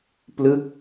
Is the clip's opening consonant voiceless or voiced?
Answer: voiceless